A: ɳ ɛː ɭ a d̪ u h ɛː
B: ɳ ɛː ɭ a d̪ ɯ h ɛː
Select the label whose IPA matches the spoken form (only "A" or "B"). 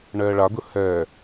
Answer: B